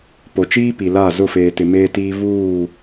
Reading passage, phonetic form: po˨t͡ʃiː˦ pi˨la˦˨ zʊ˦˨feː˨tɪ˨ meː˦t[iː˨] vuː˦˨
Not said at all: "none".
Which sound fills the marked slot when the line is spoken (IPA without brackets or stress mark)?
iː˦